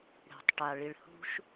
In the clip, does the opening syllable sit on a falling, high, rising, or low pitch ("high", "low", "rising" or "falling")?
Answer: low